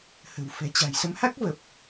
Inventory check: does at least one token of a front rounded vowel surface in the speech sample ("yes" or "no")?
no